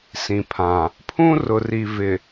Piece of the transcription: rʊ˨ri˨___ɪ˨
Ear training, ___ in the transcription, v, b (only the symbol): v